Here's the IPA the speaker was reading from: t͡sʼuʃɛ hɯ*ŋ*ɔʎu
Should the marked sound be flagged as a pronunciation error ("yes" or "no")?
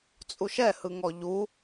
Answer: no